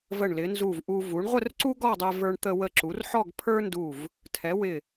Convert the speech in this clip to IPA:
və˧˩ɳlɪ˩˧ nzu˧˩vʔu˧ vu˩˧ɳʁʷə˥˧rǀu˥ ɡɔ˥˧dˤɛ˧və˞˧ɳ t̪ə˧wə˧˩ǁu˩˧r ħɔ˥˧ɡpʰə˞˥ndu˧˩v | tʰɛ˩˧wɪ˧˩

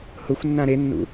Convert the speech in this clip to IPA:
hʊxʷnːã ɾenːṵ

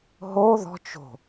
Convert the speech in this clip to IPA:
ɦo ðɔ̤t͡ʃ o̤

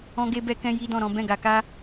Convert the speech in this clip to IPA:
ɔ̃˧ɡe˧bɛ˧kɛ̃˧ ji˦dɔ̃˦˨ɾɔ̃˨˦ bɛ̃˦˨ɡa˧ka˦

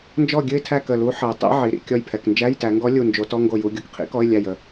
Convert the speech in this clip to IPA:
nd͡ʒɔ˥˨ɡʲɨ˥˨ɪ̯tʰæ˥˨ kə˧˩lu˧˥ ħə˩˧ʊ̯tˤḭ˧˥ ʕi˩˧ ɾḭ˧˩ kʲɔ˧˩jpʰɛ˩knd͡ʒæ˧˥˧j tæ˩˧ŋɡɔ˧˥ lʲu˧˩nd͡ʒo˩˧ tɔ˧˥˧ŋɡo˧˩ju˩˧ ɡʲo˩˧kqʰḭ˧˥kɔ˧˥˧ɪ̯ lʲæ˧˩jə˧˩

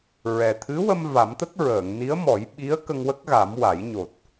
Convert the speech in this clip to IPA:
ɹɛ˨˩ t̪ʰɨ˧˥wə˧m va˨˩˦mt̪ə˦˥k̚ ɹəː˨˩˨ŋ ni˧˥ə̯mɔ˨˩˦jɓi˧˥ə̯ kə˧ŋwə˦˥k̚ɣa˨˩˦m wa˨˩˦j ɲo˨˩t̚

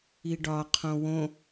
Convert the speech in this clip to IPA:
iɖɒ qʰõwõ

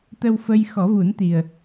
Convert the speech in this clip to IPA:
t̪ə˧wfə˧j xɔ˨˩˦vu˨˩˦nt̪i˨˩ə̯

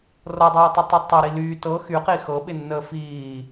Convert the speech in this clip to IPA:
rɤdˤɛːtˤətˤɤ tˤəɾi lyː tɤ xyqi xɤɓɪnːəː fiː

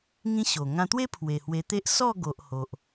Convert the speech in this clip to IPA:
ŋĩ˦ɕo˨˩ ŋã˧t̪we˦ pʰwe˨˩hwe˧t̪e˦ʔ sɔ˥˧ɡo˨ʔ ho˨ʔ

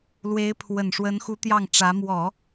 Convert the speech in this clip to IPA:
lwe˧˥ɪ̯pʰwə˨˩nʂwə˧˥nxu˧˥ t̪jɑ˥˩ŋʈ͡ʂä˧˥ mwɔ˨˩˦

